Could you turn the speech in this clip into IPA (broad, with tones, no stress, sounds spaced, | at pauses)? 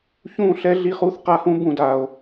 ç ũ˦˨ ɬ ɛ˦ ɮ i˦ χ u˦ θ q a˦ h ũ˦ b ũ˨ d a˨ o̯